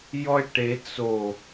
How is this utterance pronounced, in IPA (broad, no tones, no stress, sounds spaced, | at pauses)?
j ɔ e̯ ʈ e t͡s o